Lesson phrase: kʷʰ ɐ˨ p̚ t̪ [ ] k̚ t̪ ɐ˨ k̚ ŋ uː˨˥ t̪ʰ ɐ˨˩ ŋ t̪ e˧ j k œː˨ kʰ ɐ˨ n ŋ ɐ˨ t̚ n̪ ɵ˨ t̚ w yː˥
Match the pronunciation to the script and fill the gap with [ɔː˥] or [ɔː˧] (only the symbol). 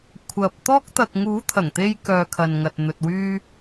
ɔː˥